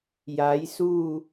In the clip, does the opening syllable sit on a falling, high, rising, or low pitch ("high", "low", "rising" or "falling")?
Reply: rising